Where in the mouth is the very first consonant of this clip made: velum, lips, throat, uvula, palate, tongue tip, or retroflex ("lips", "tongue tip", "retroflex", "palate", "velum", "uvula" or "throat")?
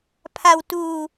lips